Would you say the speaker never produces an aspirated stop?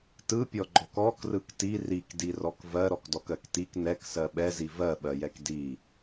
yes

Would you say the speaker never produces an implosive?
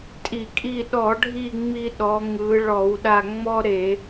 no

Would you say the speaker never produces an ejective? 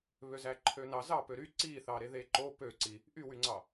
yes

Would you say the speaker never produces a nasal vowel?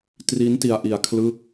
yes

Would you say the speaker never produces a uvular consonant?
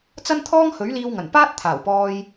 yes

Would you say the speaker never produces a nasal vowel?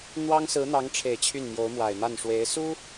yes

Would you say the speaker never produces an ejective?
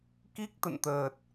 yes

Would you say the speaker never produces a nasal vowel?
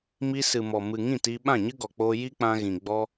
no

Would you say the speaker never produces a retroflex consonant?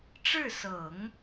no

